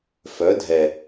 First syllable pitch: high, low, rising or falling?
rising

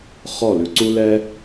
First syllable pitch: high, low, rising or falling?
falling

